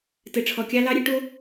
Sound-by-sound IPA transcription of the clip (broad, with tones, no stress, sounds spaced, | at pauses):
t ɘ˨ ʈ͡ʂʰ ɔ˨ kʲ ɑ˦ l ɑ˦ ɾʲ ɨ˦ ʈ o˦